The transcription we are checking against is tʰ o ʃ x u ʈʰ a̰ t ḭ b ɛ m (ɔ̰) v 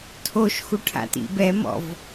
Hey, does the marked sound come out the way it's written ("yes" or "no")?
yes